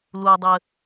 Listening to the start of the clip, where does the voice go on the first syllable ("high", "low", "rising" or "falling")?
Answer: low